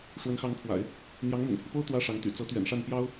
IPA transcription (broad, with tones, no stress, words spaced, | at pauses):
ʂwə˧˥nxɑ˧˥ŋpʰwa̰˨˩˦ɪ̯ | n̪jɑ˧˥ŋmʊ̰˨˩ŋpʰy˦po˥ʊ̯ t̪wä˥ʂɑ˧˥ŋt̪y̰˨˩ t͡sɤ˧˥t̪ɥɛ̰˨˩nʂa˥˩n pjɑ˥ʊ̯